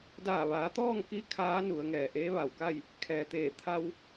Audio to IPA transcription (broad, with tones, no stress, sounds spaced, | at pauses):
d aː˧˩ ʋ aː˩˧ t̪ ɔː˥˨ ŋ k i˧˥ kʰ aː˧˥ n u˩˧ ə̯ ŋ ɛː˩ ʔ eː˧˥ ʋ a˧˩ w k a˥˨ j | kʰ ɛː˩ t̪ eː˧˩ t̪ʰ a˧ w